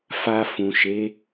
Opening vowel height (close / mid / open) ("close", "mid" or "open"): open